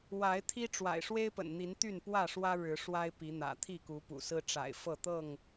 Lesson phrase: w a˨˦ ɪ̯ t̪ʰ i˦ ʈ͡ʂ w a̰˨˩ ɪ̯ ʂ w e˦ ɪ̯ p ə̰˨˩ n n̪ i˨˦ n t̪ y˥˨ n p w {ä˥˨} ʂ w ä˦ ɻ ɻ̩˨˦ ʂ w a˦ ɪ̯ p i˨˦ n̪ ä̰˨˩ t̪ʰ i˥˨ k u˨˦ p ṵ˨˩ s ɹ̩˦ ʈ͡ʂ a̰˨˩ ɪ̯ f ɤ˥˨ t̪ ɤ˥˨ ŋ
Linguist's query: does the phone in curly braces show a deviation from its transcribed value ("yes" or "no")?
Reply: no